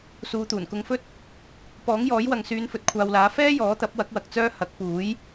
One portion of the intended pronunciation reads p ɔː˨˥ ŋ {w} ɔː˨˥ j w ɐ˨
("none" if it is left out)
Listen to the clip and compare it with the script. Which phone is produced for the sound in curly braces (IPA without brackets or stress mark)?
j